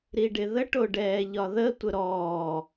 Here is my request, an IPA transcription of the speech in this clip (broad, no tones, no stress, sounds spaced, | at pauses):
ɾ i ɖ ɪ ð ə ʈ o ɖ ɛː ʎ ɒ ð ə tʷ ə ɾ ɔː